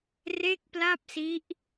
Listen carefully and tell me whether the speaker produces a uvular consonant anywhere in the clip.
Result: no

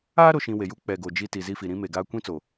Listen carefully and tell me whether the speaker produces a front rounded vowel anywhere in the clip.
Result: no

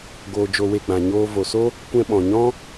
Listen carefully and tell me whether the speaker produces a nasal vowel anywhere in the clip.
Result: yes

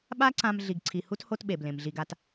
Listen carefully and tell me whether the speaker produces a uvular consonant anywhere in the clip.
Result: no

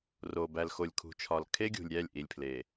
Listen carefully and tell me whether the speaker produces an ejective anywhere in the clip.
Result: no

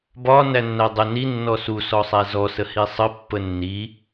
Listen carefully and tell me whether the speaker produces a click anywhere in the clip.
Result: no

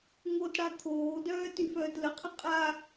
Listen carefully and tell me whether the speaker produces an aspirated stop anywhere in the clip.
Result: yes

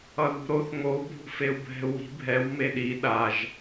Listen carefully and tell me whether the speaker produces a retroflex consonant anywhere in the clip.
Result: no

